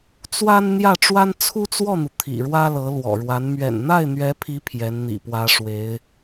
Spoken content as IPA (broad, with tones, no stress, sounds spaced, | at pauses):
t͡s w a˥ n n̪ j ä˥˩ ʈ͡ʂ w a˥ n t͡sʰ u˥ t͡s w ɔ˥˩ n̪ u˩ t̪ʰ ḭ˨˩ ɻ w ä˥ l ɤ˧˥ l w ɔ̰˨˩ ɻ w a˧˥ n m ɥ ɛ̰˨˩ n n̪ a˥˩ ɪ̯ n̪ ɥ ɛ˧˥ pʰ i˧˥ pʰ j ɛ˧˥ n n̪ ḭ˨˩ p w ä˧˥ ʂ w e˧˥ ɪ̯